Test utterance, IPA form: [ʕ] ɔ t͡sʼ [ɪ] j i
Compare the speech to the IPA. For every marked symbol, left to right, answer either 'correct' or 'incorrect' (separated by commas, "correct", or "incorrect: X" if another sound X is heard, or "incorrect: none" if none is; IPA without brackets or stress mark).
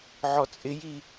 correct, correct